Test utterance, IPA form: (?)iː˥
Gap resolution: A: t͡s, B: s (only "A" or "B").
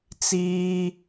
A